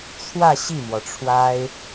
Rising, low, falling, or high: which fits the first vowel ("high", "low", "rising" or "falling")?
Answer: falling